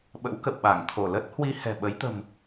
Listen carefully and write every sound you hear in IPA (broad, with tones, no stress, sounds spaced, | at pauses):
ɓ ə̰˧˥ w k ə̰˧˨ w ɓ a˧˩ ŋ t̪ʰ o˧˩ l ə˦˥ t̚ h w i˧ h ɛ̤˨˩ ɓ ə˨˦ j t̪ ə̤˨˩ m